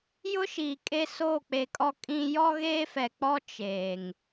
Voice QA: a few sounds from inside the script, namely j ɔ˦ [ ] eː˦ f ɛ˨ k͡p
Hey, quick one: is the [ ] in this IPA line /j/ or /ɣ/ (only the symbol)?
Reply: ɣ